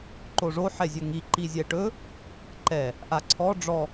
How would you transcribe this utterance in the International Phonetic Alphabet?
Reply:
ǃ o ʐ o ħ ɛ zʲ ɵ ŋ i ǃ i zʲ ɛ ʈ ɵ | ǃ ɛ | ʔ a ǀʰ ɔ ɖ͡ʐ ɔ

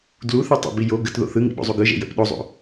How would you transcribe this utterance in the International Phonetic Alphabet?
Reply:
d l u θ ɯ tˤ ə̰ b i j o ɡ ə t ð o̰ θ ɯ ŋ ḭ ɓ o̰ zˤ u ɡ ɯ ʒ ḛ j ə̰ p ɗ o zˤ o̰

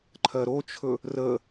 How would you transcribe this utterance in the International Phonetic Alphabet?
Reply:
ǃʰ ɜ ɾ o t͡ʃʰ ɵ | r ə

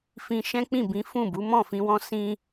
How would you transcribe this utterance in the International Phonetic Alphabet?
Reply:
f ĩ˧ ʃ ɛ̃˦ k͡p ĩ˦˨ b ĩ˨˦ f ũ˦˨ b u˨˦ m ɔ̃˦˨ f ĩ˧ w ɔ̃˦ s ĩ˧

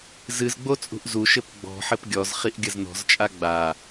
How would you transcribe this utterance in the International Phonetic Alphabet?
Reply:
z ɨ z ɡ͡b o t͡sʼ ṳ ʔ z u ʃ ɘ p ɡ͡b ɔ̤ ħ ɘ p ɡʲ ɔ z χ i ʔ ɡʲ ɐ z n ɔ̤ z t͡ʃʼ a ɡ͡b a

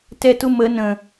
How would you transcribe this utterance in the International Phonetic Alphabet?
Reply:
t ɛ t ʊ m ə n ə̃

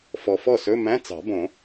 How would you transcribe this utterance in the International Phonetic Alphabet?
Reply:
f ɔ˨ f ɔ˥˩ s ɵ˧˥˧ m æ̃˧˥˧ t͡s ɑ̤˨˩˦ b õ˨˩˦

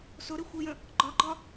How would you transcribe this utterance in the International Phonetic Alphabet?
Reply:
s ʊ ɾ ɪ xʷ i j ə̃ | ɡ͡ǃ ɒ ɡ͡ǃ ɒ

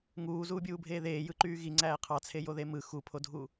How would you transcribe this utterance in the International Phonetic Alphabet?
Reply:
ŋ uː z uː bʲ uː bʱ eː ð eː j ɯ ǃ yː ɣ i ŋ͡ǀ æː qʰ ɑ t͡sʰ e j o ð e m ɯ x u pʰ o dʱ u

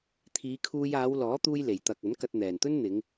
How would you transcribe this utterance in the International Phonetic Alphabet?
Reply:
t̪ʰ iː˨˧ kʰ uː˧ j aː˨˧ w l ɔː˨˥ t̪ uː˧ j l e˨˩ j t̪ ɐ˨ k̚ ɐ˨˥ n k ɐ˧ t̚ n̪ ɛː˨˩ n t̪ ɵ˥ n n̪ ɪ˨˧ ŋ

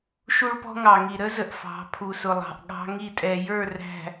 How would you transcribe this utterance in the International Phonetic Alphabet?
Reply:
ʃ u˦ ɭ p ɔ̤˦ ŋ ɑ˨ ŋ i˨ ɾ ə˦ z ə˨ ʔ f ɑ̤˨˦ pʰ u˨ s ʊ˨ lˠ ɑ̤˨ ʔ ɠ ɑ̤˦ ŋ i˦˨ tʼ ɛ˨ j ə˞˦˨ r æ̤˨

